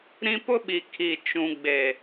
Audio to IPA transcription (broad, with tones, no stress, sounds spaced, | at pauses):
ɾ ĩ˦ p ʊ˦ ɓ i˨ kʰ i˨ t͡ʃ ũ˨ ɡ͡b e˨